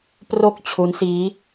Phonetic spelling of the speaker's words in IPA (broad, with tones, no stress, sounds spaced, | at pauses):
p r o˥˩ k̚ t͡ɕʰ u˦˥ n s iː˦˥